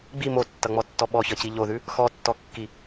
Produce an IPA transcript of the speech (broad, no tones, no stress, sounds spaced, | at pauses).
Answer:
ɡ͡b i m o tː ʌ ŋ͡m ɔ tː ɔ ɓ ɔ ç ʌ c i ʎ o ð ʉ | x ɔ tː ɔ kː i